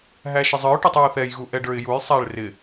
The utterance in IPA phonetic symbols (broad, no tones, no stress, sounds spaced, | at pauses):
ɦ æ ʃ ɪ zˤ ə˞ ʊ̯ ʈ ɔ tˤ j ɔ ʊ̯ θ ɛ j ɣ u ʔ ɛ ɖ ə˞ ɪ̯ j u j sˤ æ ɭ r ɪ